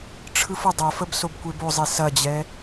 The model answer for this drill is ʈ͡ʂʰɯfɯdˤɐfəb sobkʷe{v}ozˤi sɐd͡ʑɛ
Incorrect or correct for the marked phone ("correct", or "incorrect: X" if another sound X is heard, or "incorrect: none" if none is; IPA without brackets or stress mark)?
incorrect: b